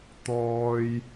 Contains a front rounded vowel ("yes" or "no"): no